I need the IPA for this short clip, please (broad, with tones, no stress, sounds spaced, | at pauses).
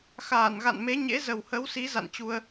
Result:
x aː˧˩ n ɣ a̰˧˨ n m e˨˦ ɲ ḛ˧˥ z ə˨˩ w h ə˨˦ w s i˨˦ z a̰˧˨ n t͡ɕ u˧ ə̯